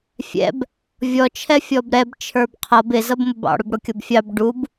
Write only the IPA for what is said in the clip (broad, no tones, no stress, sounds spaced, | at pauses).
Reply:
fʲ ɛ̰ b | vʲ ɔ t͡ʃʰ ɛ fʲ ɔ b ɾ ɛ b t͡ʃʰ ə˞ b qʰ ʌ b ɪ z ʌ b m ʊ b ɑ̰ ɽ ʊ b ɽ ʊ kʲ ʌ b fʲ ɑ b ɖ u b